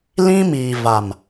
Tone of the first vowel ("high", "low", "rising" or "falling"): high